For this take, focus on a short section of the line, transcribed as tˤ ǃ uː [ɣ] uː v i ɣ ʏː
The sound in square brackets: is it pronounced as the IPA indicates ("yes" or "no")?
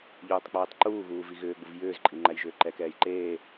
yes